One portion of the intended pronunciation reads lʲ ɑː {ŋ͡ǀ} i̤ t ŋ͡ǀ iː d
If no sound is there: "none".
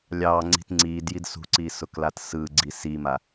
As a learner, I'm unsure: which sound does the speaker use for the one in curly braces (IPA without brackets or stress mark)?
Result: ŋ͡ǀ